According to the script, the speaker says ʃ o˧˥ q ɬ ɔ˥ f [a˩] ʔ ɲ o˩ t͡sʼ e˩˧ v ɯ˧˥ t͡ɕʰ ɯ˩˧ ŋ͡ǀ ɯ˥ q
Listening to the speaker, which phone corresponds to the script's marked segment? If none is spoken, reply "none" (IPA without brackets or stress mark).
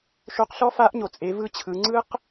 a˧˥